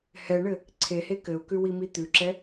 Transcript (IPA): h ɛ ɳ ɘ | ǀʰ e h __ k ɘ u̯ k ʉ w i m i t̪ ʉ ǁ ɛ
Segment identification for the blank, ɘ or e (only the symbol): e